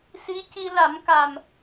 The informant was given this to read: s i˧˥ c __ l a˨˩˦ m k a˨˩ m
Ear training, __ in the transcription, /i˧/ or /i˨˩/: i˧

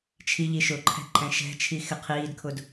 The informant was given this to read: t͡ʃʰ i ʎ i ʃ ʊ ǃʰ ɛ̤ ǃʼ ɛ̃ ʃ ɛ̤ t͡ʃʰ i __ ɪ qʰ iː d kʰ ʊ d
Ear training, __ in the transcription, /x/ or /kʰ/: x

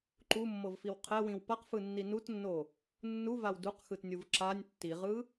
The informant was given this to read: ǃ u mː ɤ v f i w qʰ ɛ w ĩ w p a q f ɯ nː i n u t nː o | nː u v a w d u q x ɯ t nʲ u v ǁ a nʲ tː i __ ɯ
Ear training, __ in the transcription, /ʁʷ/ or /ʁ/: ʁ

